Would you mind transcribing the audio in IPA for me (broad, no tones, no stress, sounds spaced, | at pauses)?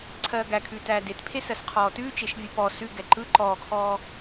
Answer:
ǀʰ ɜː ɡ æ kʰ ʉː t æː d e t pʰ e s ɜ s qʰ ɔː t ʉː t͡ʃ e ʃ vʲ ɯ p ɔ s ʉ ɡ ɛ ǃ ɯ ǃ ɔː kʰ ɔː